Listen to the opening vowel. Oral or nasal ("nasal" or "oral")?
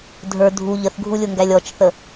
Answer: oral